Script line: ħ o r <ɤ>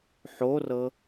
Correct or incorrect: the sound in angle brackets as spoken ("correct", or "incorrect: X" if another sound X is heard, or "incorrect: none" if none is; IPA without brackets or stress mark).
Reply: correct